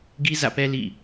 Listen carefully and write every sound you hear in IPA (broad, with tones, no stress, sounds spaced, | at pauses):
ɡ i˦ z ä̰˦˨ p ɛ˦ l ḭ˦˨